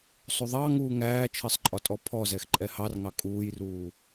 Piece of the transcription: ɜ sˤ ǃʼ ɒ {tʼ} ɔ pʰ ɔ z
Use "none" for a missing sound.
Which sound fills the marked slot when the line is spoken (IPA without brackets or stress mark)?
tʼ